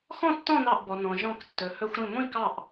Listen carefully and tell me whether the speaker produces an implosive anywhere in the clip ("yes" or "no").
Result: no